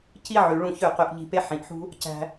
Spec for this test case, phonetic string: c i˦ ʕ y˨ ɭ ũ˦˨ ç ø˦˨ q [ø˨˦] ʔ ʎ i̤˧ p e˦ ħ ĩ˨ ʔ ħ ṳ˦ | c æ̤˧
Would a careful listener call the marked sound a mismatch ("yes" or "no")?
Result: yes